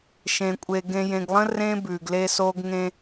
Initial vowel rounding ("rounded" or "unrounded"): unrounded